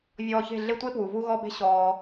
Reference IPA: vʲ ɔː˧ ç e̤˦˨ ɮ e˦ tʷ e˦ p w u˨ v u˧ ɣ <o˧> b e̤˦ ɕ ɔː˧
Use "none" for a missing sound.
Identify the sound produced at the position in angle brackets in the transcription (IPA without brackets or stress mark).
ɔ˧